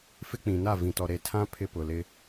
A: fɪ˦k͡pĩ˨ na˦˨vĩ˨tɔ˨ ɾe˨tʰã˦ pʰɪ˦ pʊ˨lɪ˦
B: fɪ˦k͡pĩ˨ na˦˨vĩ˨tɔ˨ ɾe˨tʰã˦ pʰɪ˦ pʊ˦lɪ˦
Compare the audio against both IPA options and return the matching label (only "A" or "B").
A